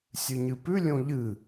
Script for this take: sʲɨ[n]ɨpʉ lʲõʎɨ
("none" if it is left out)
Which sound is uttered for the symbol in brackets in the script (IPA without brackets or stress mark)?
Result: ɲ